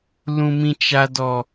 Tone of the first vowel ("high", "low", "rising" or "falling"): low